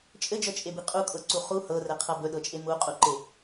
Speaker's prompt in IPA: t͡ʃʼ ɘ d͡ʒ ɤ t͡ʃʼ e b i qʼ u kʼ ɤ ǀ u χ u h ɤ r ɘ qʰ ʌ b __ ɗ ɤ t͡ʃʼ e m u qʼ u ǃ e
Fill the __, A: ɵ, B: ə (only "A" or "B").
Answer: A